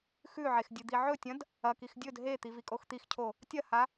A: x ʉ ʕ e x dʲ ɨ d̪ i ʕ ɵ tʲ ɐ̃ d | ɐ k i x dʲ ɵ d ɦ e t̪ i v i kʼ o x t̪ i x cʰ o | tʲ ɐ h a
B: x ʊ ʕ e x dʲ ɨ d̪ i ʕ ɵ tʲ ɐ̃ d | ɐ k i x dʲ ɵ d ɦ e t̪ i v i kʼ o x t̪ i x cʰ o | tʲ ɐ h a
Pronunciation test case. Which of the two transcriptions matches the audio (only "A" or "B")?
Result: A